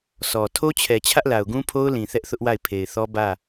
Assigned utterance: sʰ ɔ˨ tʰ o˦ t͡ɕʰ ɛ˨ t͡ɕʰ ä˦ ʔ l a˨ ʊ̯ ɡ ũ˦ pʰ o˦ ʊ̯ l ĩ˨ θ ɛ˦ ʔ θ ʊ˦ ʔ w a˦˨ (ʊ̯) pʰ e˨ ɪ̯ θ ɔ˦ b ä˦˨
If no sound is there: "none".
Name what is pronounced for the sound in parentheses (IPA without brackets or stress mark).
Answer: ɪ̯